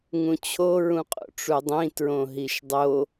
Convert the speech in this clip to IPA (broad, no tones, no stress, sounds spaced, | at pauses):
ŋ ũ t͡ɕʰ o ɹ ũ qʼ o̰ ʈ͡ʂ u dˤ ĩ t ɹ õ ɦ i ʃ dˤ o